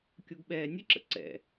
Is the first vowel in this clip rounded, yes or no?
yes